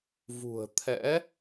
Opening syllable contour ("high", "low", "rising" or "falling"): low